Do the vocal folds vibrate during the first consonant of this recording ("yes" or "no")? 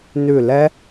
yes